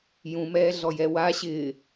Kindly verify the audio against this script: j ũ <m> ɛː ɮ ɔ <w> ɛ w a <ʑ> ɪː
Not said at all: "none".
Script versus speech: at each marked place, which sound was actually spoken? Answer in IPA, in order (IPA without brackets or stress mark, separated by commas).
m, j, ɕ